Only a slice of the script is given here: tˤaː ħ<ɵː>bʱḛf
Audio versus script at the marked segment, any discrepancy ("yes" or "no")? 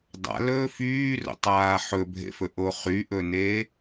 yes